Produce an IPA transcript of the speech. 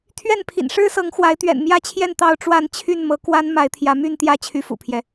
t̪ʰɥɛ˥˨npʰḭ˨˩n ʂɻ̩˦sɤ˨˦ŋ xwa˨˦ɪ̯t̪ɥɛ̰˨˩nmjä˥˨t͡ɕʰjɛ˥˨n t̪ɑ˥˨ʊ̯ʈ͡ʂwa˥˨n t͡ɕʰy˥˨nmɤ˨˦kwa˦n ma˨˦ɪ̯t̪ʰjä˨˦my˥˨nt̪jä˥˨ t͡ɕʰy˦fṵ˨˩pʰjɛ˦

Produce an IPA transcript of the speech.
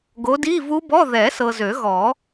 ɡo˨˦di˧˥˧vu˦˥bɔ˧˥˧ ðɛ˨˩˦sɤ˨ zø˨˩˦ɣɔ˨˩˦

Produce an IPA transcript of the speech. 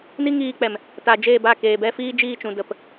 ni˦ŋiː˧k͡pɛ˨m | ta˨d͡ʒeː˦˨ba˦˨keː˨ bɛ˦ fiː˦d͡ʒiː˦˨t͡ʃũ˨ də˨p

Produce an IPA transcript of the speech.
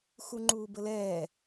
xuŋ͡ǃuːbəlɛː

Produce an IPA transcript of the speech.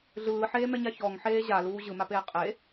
ɮɯːħeːmɛɲa çɔŋħeː ʑaluː ʑɯmapeː qʼe

